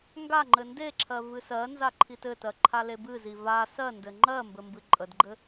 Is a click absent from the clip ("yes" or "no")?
no